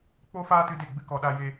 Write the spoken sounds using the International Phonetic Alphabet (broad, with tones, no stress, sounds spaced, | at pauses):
k͡p oː˦ f aː˦ t ɨ˧ d e˦˨ ɡ͡b ɨ˦ k ɔ˧ ɗ a˦ j e˦